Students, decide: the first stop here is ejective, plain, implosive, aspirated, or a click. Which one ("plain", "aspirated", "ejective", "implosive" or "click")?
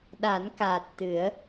implosive